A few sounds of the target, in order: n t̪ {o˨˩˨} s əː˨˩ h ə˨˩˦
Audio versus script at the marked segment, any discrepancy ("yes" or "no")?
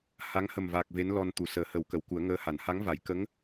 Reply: yes